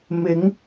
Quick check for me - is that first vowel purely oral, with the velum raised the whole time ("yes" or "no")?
yes